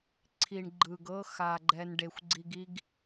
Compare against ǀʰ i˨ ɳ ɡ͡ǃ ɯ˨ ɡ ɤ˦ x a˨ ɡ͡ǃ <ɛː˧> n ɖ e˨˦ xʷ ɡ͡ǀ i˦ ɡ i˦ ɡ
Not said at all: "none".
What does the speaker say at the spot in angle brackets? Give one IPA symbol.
ɛː˧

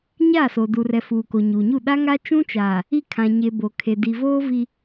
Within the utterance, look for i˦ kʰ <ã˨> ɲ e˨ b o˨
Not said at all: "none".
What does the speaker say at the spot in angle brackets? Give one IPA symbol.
ã˨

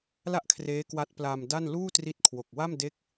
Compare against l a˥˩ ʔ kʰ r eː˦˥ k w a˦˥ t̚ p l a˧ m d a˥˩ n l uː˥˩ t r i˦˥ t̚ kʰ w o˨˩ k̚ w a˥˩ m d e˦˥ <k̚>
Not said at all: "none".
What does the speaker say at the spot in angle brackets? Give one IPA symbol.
k̚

